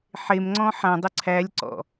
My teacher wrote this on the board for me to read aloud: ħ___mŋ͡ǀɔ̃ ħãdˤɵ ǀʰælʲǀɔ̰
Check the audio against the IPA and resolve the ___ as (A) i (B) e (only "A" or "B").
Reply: B